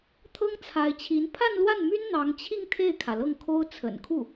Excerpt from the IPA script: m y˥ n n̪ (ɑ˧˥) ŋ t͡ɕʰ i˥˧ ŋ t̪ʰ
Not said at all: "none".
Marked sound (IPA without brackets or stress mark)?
ɑ˧˥